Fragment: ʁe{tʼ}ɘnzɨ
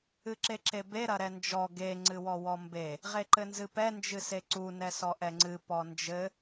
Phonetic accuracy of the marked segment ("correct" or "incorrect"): incorrect